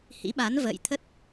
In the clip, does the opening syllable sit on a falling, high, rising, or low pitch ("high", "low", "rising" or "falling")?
rising